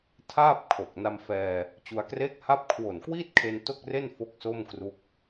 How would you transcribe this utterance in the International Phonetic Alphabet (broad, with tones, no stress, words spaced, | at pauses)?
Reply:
tʰaː˥˩p̚ kʰo˨˩k̚ na˧mfɛː˧ | t͡ɕu˧a̯kreː˥˩k̚ha˥˩p̚ kʰwo˨˩nkwiː˥˩t̚kʰe˧n to˥˩k̚re˥˩n fo˥˩k̚so˥˩mkru˦˥k̚